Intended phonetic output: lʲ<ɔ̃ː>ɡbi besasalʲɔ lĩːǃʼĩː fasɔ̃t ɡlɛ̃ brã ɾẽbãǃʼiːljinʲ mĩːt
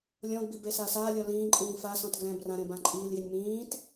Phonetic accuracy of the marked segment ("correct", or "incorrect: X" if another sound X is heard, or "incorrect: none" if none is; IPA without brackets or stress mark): incorrect: ɔ̃